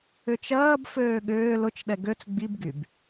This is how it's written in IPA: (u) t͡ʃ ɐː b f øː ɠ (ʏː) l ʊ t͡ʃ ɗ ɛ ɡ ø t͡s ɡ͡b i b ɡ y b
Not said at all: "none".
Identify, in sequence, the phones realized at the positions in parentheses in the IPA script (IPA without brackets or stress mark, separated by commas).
ʏ, ʏː